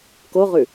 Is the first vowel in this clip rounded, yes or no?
yes